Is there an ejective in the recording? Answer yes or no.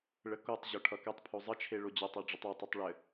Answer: no